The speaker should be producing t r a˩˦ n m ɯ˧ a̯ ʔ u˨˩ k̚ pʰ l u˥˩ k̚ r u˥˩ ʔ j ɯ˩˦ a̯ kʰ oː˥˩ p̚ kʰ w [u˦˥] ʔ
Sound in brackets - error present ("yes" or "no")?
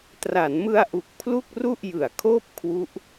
no